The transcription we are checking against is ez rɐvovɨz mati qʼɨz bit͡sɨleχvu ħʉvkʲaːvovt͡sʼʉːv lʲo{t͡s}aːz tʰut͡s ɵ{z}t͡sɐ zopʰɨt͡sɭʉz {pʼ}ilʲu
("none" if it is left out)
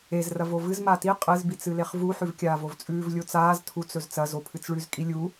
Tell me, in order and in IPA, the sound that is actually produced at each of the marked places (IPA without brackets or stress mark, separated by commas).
t͡s, z, kʼ